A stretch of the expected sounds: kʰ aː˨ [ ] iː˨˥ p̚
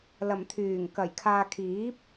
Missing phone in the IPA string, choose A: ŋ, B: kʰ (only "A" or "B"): B